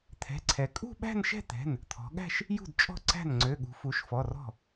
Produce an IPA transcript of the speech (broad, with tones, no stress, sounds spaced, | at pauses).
t̪ʰ ɛ̤˩˧˩ ǀʰ ɛ˩˧ kʼ ṳ˥˧ ɓ æ̤˥˧ n ʃ ɛ̤˥˧ t̪ ɛ̤˩˧˩ n | t̪ʰ ɔ̤˩˧ ɠ æ̤˥˧ ʃ | j ṳ˥˩ d t͡ʃʼ ɔ̤˥˩ ǀ æ̤˥˩ n ŋ͡ǀ ø˩˧˩ ɠ ṳ˩˧ f u˩˧ ʃ f ɔ˩˧˩ r ɔ̤˥˩